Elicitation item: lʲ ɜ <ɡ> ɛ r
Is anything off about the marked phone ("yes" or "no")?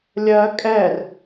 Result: yes